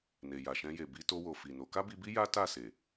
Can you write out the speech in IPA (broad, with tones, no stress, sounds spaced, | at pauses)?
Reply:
n e˨ j a˨ ʃ ɛ̃˧ j e˨ b i˧ t o˧ w o˨ f i˨ n o˨˦ k a˦ b i˧ b i˦ j a˦ t a˦˨ s e˨